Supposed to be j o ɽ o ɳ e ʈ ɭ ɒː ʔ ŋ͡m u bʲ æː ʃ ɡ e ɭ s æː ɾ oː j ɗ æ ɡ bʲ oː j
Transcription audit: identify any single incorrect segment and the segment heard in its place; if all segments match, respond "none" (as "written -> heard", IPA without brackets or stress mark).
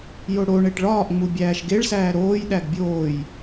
none